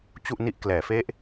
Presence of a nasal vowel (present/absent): absent